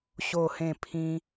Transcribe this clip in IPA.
ɕ o˥˧ h ẽ˥˧ pʰ ĩ˦

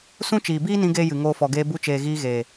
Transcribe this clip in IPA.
s ũ˦ t͡ʃ iː˨ b iː˦ n ĩ˧ ɡ eː˦ j ɨ˨ ŋ oː˧ f ɔ˨ ɡ eː˧ b u˧ t͡ʃ eː˨ ɣ iː˧ ɣ eː˨

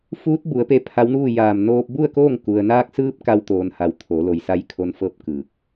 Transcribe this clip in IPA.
f uː˧˥ t̚ b u˩˧ ə̯ p e˧ pʰ a˧˥ w n uː˥˨ j aː˧˩ m n oː˧ p̚ b u˥˨ ə̯ k oː˥˨ ŋ k u˩ ə̯ n aː˧ k̚ s ɯː˧ p̚ k a˧ w t̪ oː˩ n h a˩˧ w t̪ʰ o˩˧ l o˩ j s a˧ j kʰ o˧˥ n f ɤː˥˨ p̚ k ɯː˧˩ k̚

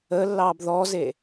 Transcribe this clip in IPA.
ə lː ɑː b ð ɔ z e

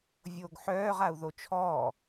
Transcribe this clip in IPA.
vʲ oː ɡ ħ œː ʁ a u̯ ð o t͡ʃʰ ɔː

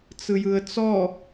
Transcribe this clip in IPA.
t͡s ɯ j ɯ ə̯ t͡s ɔ

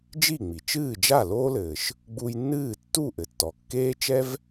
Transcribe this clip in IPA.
d͡ʒ i˥˩ ŋ͡m i˩ t͡ʃ ɨː˥˩ d͡ʒ a˥˩ l oː˥ l ɘː˩ ʃ | ɡ͡b u˧ j nː ɨː˥˩ tː u˥˩ ʔ ɘ˩ tː ɔ˩ kː eː˥ t͡ʃ ɛ˥ v

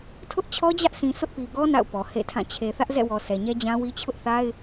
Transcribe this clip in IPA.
tʰ ʊ˦ ʔ t͡ɕʰ ɔ˦ d͡ʑ ä˦ ʔ s ĩ˨ sʰ ʊ˦ ʔ p i˨ ɡ ɔ˦ n a̰˦˨ ʊ̯ p ɔ˨ h ḛ˦˨ tʰ ã˦˨ t͡ɕʰ e˨ θ ä˦ ʔ z ɛ̰˦˨ w ɔ˨ s ɛ˨ ɲ ɛ˦ d͡ʑ ã˦ w i˦ t͡ɕʰ ʊ˦ ʔ θ a˦ ɪ̯

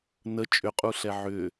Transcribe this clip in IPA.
n ə t͡ʃʼ ʏ qʼ u ɬ ɛ ʕ ʏ

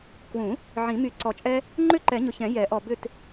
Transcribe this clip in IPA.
k w ũ˨˩˦ | ʕ ĩ˨˩˦ m y˨ ǀ ɔ˨ t͡ʃʼ ɛ˦ | ŋ͡ǃ ʏ˥˨ ǃ ɛ˨˩˦ ɲ ʊ˨ ç ɛ̃˨˩˦ j ɛ˨˩˦ ʔ ɔ˨ b ʏ˥˨ t

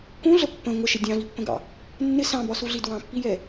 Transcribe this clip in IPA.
k ũ ɮ ə pː ə̃ ŋʷ ə ʃ ɪ dʲ ɑ̃ v i pː ə̃ ɡ ɑ̰ | nː ɪ s ɑ̃ b ɒ s u ɮ i d w ɑ̃ pː i j ɛ

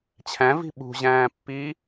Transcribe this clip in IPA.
t͡ɕʰ æ̃ v i̤ ɓ ṳ ʑ æ̃ː pː iː

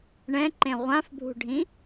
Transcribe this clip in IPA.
ɳ ɛ̃ ǃ ẽ ʁʷ ã f bʱ ṳ ɖʱ ĩ

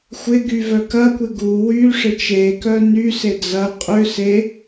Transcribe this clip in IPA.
xʷ ɪ ɡ y v œ k ɐ kʷ ɪ ɡ u w y ʂ ɪ t͡ʃ e k œ n y s e d͡z ɐ qʼ ʏ s e

